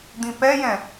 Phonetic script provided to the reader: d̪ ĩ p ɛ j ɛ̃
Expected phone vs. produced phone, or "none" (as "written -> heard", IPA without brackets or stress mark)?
none